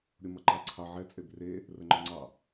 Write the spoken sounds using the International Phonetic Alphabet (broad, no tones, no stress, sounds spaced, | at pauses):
ɾʲ o m ʌ ǃ ɑ ǀʰ ɑ ʕ ɛ t͡sʼ e b r e | r ə ŋ͡ǃ ɔ ŋ͡ǀ ɑ